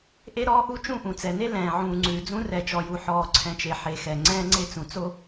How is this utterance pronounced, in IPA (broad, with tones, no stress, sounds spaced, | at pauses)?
ʔ e˦ ɾ ɔː˦ ʔ u˦ t͡ʃ ũ˦˨ ʔ ũ˨ t͡s ɛ˨ n e˦ l ɛ̃ː˨ ʕ ũː˨ ŋ͡ǀ ʉː˨ d͡z ũ˦ r ɛ˨ t͡ʃ ɔ˨ j u˨ ħ ɔː˨ ǀʰ ɛ̃˨ t͡ʃ e˨ ħ e˨ x ɛ˨ ŋ͡ǀ ɛ̃ː˦ ŋ͡ǀ e˦ t͡s ũ˨ t͡s o˦